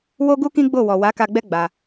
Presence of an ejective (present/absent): absent